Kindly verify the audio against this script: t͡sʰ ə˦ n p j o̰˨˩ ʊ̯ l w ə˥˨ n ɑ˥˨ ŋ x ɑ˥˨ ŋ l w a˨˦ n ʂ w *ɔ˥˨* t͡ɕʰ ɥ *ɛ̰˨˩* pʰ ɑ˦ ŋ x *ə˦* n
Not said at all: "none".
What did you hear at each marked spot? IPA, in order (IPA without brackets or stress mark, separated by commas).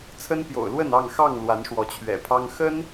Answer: ɔ˨˦, ɛ̰˨˩, ə˦